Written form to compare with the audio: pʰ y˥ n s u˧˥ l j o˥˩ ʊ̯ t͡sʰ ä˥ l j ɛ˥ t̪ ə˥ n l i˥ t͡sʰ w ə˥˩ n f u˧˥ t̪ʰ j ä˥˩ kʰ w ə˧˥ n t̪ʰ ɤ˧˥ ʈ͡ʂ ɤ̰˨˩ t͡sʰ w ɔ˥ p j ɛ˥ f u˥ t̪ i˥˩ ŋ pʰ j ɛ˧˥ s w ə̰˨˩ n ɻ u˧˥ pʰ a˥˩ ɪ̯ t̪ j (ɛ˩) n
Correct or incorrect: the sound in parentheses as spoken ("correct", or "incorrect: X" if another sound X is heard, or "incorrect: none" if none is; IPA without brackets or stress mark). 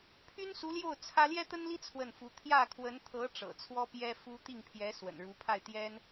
incorrect: ɛ˥